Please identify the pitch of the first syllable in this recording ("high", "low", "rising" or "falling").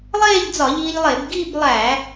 falling